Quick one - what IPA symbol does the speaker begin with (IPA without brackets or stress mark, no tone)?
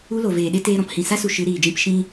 u